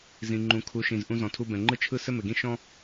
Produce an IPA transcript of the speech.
z ĩ˨ ŋ͡ǃ ũ˨ kʰ u˨˦ ʃ ĩ˨ z ʔ ũ˧ z ɔ̃˨ tʰ u˧ b ɛ̃˨ ŋ͡ǃ ɯ˦ t͡ʃʰ ɯ˦ s ɘ˦ m ɘ˨ ɡ ĩ˦ ʃ ɔ̃˦

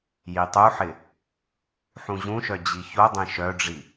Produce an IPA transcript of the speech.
j i tˤ u ħ ɪ | ħ ũ ʑ ũ ʃ œ d͡ʑ i ç o dˤ ẽ ʃ œ ɖ͡ʐ i

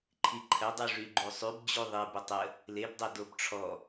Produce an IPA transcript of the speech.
ǃʰ i ǃʰ ə dˤ u ʐ y ɡ͡ǃ u sˤ y b d͡ʑ u ðˤ i b ə tˤ ə | l e b dˤ ɛ d o b ʈ͡ʂʰ ɔ

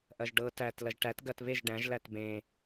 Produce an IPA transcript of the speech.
ʔ ɐ ʒ ɖ ɤ t æ t l ɐ ʒ ʈ æ t ɡ ɐ t β e ʒ ɖ æ̃ ʒ l æ t b ẽ

